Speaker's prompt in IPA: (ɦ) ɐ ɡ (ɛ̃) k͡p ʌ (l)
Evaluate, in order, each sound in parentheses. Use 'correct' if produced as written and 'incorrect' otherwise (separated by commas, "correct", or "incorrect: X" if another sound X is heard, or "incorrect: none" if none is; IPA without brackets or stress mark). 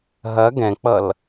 correct, correct, correct